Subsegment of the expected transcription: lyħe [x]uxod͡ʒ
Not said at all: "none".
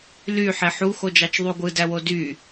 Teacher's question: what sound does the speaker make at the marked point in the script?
ħ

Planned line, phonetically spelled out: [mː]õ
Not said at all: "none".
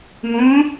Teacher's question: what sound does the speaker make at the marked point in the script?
ŋ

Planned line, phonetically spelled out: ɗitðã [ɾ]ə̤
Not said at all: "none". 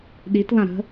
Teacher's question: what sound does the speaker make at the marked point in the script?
ɾ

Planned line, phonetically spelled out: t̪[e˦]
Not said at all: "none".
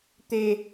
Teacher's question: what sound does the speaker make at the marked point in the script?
e˨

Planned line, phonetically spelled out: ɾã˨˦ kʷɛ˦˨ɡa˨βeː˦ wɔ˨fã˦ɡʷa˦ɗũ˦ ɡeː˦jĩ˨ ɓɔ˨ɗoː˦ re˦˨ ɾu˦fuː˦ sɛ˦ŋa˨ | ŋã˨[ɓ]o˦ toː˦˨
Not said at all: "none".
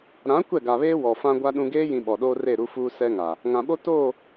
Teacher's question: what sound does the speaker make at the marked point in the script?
ɓ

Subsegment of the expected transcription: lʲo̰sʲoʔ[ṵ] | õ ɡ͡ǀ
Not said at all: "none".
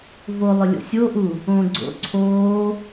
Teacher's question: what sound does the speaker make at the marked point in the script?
u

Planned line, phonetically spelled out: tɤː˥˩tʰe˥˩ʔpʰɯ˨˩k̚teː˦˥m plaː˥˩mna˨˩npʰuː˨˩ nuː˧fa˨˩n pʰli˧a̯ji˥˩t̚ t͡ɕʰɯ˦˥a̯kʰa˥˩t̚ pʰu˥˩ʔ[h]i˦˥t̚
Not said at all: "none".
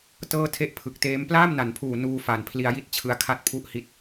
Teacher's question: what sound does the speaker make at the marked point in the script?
h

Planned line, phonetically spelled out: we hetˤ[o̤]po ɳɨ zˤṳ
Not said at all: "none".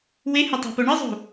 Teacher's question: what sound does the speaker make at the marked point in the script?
o̤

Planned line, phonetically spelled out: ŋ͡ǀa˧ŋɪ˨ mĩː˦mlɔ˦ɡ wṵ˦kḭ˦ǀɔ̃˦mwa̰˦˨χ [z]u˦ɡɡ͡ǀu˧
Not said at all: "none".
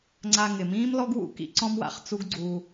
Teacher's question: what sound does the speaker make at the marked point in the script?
t͡s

